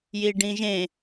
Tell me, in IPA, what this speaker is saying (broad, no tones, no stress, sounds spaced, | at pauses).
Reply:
j i ɖ ĩ ʒ ẽ